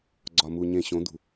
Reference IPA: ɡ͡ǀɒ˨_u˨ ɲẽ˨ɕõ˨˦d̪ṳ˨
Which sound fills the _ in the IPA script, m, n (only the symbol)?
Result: m